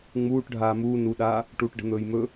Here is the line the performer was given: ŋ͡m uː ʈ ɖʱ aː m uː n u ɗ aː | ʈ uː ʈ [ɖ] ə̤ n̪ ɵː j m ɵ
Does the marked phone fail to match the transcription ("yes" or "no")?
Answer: no